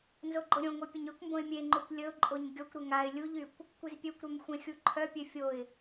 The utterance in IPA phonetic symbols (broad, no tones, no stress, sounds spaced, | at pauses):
n z o ɡ͡ǃ o ɾʲ õ ŋʷ œ pʲ ə ɲ ø kʷ m b õ ɪ̯ mʲ e ŋ͡ǃ u kʷ lʲ ə ʊ̯ ǃʼ o ɲ ɡʲ ɔ kʷ ɾ ə ŋ a ɪ̯ lʲ u ʎ y kʷ | kʷ i z pʲ ø kʷ ɾ œ m xʷ ẽ xʲ u ǃʰ œ pʲ ø fʲ o ɪ̯